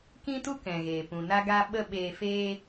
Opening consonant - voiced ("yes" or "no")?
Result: no